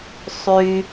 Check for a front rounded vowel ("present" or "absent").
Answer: present